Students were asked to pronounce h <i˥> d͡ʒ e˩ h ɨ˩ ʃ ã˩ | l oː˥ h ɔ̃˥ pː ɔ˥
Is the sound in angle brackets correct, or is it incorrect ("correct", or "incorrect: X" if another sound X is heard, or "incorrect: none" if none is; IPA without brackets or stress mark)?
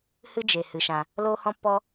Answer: incorrect: ɨ˥